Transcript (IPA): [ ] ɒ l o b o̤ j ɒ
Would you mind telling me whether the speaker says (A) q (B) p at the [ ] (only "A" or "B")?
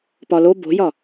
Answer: B